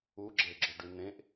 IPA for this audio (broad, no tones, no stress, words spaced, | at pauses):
uɡ͡ǁeɡ͡ǁø ɖynẽʔ